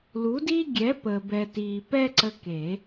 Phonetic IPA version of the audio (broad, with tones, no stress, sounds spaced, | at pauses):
l u˨˦ d i˦ ɡʲ ɛ˨˦ p ə˨ b ɛ˨ t i˨ p ɛ˦ ǀ ə˦ k e˨˩˦